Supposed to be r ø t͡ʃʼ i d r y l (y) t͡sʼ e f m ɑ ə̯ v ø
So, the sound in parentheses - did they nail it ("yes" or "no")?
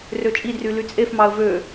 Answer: yes